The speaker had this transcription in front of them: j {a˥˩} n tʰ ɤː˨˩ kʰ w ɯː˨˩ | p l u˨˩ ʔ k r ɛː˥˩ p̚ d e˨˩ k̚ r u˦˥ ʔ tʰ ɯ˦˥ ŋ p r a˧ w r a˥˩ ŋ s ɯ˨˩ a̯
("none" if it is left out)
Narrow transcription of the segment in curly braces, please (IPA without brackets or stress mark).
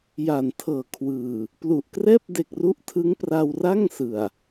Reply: a˨˩